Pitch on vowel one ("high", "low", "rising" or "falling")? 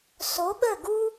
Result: rising